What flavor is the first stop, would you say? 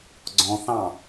click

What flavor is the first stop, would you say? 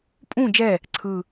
ejective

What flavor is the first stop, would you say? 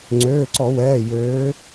click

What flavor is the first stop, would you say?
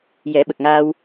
implosive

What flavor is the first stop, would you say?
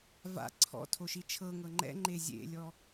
click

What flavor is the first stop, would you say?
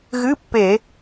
plain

